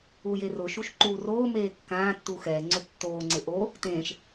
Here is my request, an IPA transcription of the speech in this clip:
ujerʊʃuʃ ǃuːroːmeː kːãː tːuxɛŋ͡ǀʊ tːoːŋ͡ǀɪ ʔo | tẽːʃ

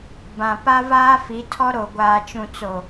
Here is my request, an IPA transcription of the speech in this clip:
bã˨ pa˦vaː˦fi˨˦tʰɔ˦ ɾo˨ ɡʷaː˨t͡ʃũ˨t͡so˨

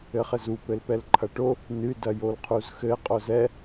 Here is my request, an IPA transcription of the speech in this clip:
ɘχɘzu pɘlpɛlǃʰɐʈo | nɨ dɐjolqʰuzxɘ qʼozɛ

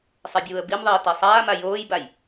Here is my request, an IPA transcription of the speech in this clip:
sˤebʲuːə̯bimðˤiː tesˤaːma joːjbaj

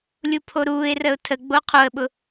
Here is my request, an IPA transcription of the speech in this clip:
lʲupʰoɾuːɪ̯rəʊ̯ tʰəɡ͡bo qʰoə̯ɓʊ

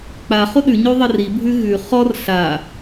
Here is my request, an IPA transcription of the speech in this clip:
k͡paχo ɗʉɲo ðˤəribʱʉ ɣʉ χɔr ɬa

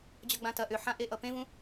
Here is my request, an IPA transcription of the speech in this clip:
d͡ʑʌɡ͡bãtɐ ʔʏħãʔe ʔʌpẽvũ

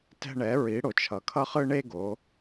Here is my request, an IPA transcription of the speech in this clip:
tɛ̤˦ ɳɛ˨˦ ɹi˨˦ɽo˨ t͡ʃʰʌ˨kʰʌ˦χɯ˦ ɳe˦ɡo˨˦

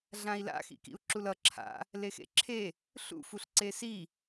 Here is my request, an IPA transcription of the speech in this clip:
ɮãi̯la̰ xḭkḭu̯ǁulʌ ǁʰa̰ | lexḛǁʰe | ɬṵ fuɬǀesi

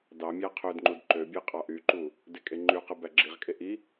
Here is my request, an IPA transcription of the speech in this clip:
dɑmʲæ qʰødŋ͡ǃud ǃøbʲe qʼɑʔyǃu | dekʼeŋ͡ǃyqɯ bæɡ͡ǁiʁkʼe ʔi

